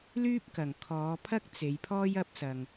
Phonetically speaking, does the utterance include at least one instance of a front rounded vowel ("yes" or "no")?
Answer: yes